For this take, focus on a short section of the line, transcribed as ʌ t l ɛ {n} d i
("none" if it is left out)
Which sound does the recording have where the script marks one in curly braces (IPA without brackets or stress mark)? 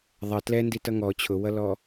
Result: n